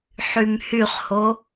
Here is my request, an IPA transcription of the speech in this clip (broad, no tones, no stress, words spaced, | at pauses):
ħymhyχho